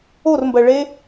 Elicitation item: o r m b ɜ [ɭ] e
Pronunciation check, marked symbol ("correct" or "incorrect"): correct